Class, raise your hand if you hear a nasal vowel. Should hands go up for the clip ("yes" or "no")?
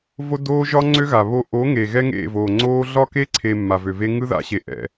no